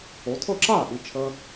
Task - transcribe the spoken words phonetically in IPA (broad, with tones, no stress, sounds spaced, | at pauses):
o˩˧ tʰ ɤ˥˩ ǁ aː˥˩ ʔ i˩˧ t͡ʃʰ əː˧